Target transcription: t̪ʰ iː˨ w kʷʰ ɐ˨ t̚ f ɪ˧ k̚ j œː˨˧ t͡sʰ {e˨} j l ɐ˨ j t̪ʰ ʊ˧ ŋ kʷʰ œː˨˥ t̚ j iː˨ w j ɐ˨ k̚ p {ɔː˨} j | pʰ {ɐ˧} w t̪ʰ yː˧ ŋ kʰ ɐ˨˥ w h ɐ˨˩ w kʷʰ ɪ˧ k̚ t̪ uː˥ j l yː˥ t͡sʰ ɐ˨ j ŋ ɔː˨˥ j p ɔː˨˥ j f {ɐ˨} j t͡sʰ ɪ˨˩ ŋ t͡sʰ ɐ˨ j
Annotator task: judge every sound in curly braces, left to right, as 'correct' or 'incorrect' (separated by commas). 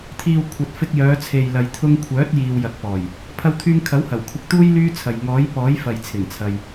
correct, incorrect, correct, correct